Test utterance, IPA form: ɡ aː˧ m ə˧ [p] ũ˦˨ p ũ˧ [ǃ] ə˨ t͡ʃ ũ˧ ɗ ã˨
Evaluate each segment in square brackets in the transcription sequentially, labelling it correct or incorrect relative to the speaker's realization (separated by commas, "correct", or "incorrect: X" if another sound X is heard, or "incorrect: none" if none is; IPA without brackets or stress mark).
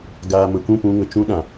incorrect: kʷ, incorrect: ŋ